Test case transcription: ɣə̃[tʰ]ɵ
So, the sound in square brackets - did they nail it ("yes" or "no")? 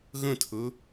yes